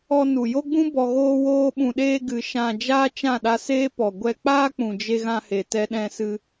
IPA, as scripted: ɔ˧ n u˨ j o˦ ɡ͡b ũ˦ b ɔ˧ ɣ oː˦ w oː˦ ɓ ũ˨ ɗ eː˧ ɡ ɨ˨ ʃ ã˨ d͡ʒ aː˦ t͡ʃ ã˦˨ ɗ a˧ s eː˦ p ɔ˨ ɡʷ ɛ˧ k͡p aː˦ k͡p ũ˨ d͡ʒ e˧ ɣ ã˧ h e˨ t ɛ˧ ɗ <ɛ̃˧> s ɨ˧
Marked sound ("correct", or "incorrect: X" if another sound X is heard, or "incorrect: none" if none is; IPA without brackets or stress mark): correct